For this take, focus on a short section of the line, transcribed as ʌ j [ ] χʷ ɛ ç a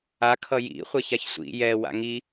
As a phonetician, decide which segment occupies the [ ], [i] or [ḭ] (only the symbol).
ḭ